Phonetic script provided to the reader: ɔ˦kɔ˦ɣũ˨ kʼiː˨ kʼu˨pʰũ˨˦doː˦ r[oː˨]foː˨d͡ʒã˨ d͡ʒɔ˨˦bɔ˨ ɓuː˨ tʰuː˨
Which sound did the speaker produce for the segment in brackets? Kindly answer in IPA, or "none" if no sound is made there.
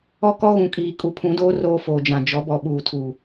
oː˦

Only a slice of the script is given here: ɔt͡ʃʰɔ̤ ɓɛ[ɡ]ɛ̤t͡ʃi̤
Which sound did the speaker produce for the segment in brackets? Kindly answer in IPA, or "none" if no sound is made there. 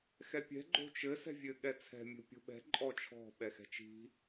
x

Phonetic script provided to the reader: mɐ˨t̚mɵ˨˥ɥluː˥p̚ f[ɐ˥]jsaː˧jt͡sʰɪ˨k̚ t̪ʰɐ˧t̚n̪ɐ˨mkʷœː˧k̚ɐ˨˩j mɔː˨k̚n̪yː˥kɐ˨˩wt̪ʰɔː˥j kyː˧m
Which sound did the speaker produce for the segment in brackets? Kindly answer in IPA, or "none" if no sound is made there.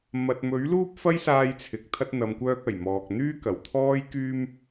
ɐ˥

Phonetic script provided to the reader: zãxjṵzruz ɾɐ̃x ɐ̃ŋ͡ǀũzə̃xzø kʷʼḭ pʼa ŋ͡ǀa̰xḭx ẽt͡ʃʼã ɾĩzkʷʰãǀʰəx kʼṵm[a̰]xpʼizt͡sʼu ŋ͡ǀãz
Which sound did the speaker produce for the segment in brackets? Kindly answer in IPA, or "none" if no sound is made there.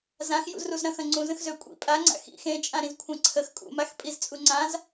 a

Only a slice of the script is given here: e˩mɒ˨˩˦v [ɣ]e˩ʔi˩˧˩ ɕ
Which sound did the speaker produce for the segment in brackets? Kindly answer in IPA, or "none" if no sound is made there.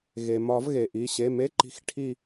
ɣ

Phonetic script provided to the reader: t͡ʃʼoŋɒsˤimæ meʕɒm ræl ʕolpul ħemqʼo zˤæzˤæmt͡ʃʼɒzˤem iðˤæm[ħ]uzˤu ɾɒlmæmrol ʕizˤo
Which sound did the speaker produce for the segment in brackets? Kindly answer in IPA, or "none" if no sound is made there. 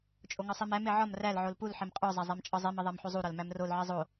ħ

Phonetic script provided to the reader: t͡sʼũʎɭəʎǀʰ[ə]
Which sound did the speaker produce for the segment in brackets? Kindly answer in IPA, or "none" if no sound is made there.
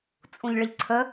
ə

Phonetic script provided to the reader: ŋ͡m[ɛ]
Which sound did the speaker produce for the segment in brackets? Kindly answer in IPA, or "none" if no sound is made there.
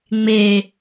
e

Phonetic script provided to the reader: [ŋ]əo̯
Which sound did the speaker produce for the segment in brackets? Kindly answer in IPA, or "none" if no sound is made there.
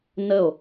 n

